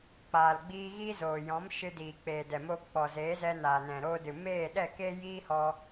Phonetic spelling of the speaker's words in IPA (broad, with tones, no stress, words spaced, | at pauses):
k͡paː˨lɡ͡biː˧ ɣi˦zoː˨ jɔ̃˨˦m ʃɨ˧diː˨k͡peː˨dɛ˨ mo˧k͡pɔ˨zeː˨˦zɛ˧ naː˨nɛ̃˨ɾoː˧dɨ˨ meː˦˨ɗɛ˦˨ keː˦jiː˦ hɔ˦